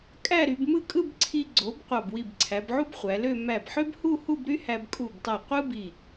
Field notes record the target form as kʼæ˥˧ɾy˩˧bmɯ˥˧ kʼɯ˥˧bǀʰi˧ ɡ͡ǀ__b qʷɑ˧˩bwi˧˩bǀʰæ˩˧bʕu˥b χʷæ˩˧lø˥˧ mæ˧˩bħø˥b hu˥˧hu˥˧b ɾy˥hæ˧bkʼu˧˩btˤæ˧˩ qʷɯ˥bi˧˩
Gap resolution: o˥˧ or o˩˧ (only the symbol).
o˩˧